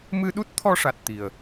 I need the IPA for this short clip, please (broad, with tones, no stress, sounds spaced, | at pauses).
m ɨ˧ ɗ u˦˥ t̚ t̪ʰ ɔ˧ ʂ a˨˩ t̚ t̪ i˨˩ ə̯